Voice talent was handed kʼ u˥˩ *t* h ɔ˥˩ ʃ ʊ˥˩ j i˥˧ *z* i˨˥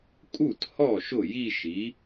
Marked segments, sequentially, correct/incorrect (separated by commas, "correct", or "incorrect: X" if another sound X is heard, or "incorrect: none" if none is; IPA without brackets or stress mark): correct, incorrect: ʃ